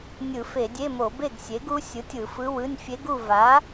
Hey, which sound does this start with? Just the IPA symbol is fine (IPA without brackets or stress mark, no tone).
nʲ